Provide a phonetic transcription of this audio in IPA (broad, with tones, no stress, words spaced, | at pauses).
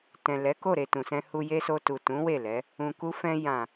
tɛ̃˨ lɛ˨˦ko˦˨ɾe˨ tũ˨sɛ̃˧hu˧ je˦so˧tu˨ tũ˨˦ we˦˨lɛ˨˦ | ũ˨ku˧fɛ̃˧ jã˨